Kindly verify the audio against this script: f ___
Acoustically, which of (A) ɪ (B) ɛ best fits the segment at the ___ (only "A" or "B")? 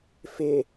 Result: A